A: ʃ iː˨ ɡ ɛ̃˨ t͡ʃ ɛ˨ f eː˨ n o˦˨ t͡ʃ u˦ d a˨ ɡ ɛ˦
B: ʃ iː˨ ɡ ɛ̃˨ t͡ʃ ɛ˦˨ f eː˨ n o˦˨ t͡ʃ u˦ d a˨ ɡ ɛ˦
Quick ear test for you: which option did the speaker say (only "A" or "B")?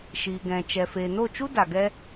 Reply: A